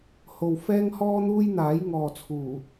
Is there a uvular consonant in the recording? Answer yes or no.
no